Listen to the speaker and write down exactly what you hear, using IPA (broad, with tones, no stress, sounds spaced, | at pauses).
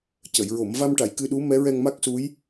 c ə˨˩˨ j ɹ o˨˩˨ m v a˧ m ʈ a˨˩˨ j k ɨ˧ ɗ u˧˥ m ɛ˧˥ ɹ ɛ˧ ŋ m a˦˥ k̚ s u˧˥ j